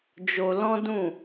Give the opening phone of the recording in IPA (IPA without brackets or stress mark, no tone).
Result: d͡ʒ